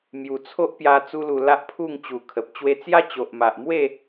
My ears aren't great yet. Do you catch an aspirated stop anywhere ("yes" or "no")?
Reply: yes